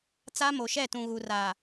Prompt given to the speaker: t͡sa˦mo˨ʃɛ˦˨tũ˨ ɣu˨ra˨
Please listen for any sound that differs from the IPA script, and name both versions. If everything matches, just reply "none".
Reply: none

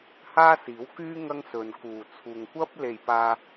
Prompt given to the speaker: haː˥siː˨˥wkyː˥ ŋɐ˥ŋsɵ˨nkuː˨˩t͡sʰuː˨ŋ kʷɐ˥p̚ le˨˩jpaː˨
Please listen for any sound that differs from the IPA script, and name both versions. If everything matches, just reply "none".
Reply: none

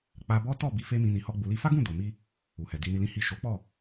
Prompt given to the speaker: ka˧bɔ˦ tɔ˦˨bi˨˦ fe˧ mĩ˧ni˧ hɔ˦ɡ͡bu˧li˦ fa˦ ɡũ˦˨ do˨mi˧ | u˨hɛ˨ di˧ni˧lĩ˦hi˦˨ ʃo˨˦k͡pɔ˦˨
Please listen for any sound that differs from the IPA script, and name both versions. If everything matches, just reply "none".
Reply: k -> k͡p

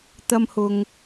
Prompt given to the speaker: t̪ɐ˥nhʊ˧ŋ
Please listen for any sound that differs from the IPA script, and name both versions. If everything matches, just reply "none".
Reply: n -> m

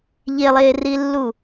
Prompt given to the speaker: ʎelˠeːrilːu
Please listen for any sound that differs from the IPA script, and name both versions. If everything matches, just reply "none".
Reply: none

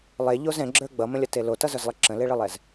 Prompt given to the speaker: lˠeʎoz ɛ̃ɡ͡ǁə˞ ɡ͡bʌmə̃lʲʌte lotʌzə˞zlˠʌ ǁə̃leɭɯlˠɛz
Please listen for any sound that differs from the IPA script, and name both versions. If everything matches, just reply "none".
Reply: none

